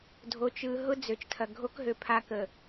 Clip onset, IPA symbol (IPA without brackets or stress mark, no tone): dʱ